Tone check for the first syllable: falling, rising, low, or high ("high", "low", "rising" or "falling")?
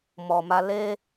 low